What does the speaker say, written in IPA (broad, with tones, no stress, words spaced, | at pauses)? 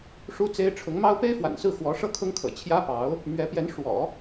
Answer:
ʂu˥t͡se˥ɪ̯ ʈ͡ʂʰʊ˧˥ŋmɑ˥ʊ̯ pe˥ɪ̯fwa̰˨˩nsɹ̩˥˩ xwɔ˧˥ʂɤ˥kʰʊ˥ŋkʰɤ̰˨˩ t͡ɕʰjä˥pɑ˧˥ʊ̯ | mɥɛ˧˥pjɛ˧˥n ʂwɔ̰˨˩˦